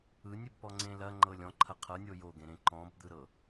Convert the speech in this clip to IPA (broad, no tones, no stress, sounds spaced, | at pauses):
ɯ nʲ ɘ b p ɔ ŋ͡ǀ ẽ l ɐ ŋ͡ǃ ɤ lʲ ɔ̃ ǃʰ ɐ qʰ ɤ nʲ o j o ɡ ẽ ɾ ẽ ǃ ɔ̃ b d̪ ɯ ɾ ɤ